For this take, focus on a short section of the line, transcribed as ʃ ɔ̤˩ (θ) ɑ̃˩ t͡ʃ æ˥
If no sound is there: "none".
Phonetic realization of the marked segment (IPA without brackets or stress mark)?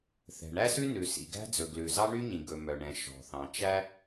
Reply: θ